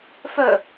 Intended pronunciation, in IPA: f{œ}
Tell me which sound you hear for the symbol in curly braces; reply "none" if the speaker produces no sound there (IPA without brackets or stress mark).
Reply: œ